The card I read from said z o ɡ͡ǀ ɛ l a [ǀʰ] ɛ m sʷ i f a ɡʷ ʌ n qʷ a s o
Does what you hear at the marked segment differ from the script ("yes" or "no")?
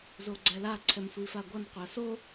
no